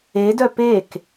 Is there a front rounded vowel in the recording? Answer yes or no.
yes